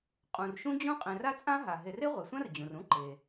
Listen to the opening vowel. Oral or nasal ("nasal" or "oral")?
nasal